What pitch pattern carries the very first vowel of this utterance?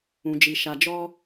low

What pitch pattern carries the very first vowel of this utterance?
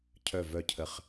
falling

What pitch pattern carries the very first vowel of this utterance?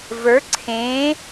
rising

